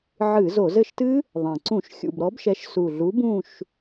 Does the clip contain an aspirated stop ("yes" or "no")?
no